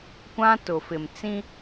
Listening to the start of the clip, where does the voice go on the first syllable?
high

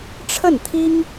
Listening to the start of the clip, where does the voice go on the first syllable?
falling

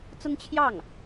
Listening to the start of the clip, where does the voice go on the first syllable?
high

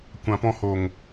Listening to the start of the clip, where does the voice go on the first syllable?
low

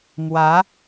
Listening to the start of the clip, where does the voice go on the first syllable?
rising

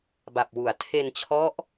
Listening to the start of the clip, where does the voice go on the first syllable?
low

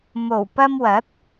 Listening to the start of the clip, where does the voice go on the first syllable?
low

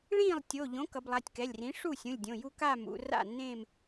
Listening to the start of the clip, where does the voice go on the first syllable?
falling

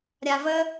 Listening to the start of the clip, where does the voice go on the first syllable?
high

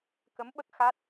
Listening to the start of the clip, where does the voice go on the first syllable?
rising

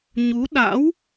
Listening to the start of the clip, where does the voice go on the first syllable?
rising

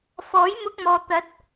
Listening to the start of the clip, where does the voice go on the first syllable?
rising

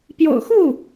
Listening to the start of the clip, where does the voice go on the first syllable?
low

